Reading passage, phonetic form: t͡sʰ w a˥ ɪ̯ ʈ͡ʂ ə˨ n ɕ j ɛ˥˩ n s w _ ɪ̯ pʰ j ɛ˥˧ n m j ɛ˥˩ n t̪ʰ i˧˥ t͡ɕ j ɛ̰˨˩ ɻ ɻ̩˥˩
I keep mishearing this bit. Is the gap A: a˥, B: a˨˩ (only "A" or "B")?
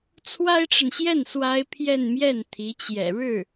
A